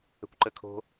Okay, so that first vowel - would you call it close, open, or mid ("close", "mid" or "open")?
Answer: mid